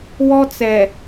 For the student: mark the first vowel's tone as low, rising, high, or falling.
high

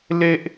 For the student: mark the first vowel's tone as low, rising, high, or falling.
high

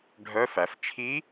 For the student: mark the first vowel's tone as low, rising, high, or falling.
rising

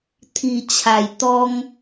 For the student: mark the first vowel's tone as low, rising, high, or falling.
low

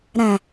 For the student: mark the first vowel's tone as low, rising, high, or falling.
low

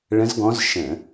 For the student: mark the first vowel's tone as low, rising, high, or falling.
rising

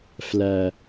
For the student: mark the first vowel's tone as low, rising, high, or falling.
low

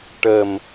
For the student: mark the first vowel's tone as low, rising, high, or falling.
low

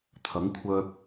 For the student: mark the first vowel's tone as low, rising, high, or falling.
rising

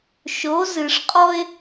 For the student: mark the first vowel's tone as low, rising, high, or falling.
rising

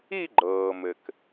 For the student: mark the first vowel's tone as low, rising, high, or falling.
falling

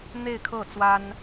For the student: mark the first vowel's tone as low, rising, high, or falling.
falling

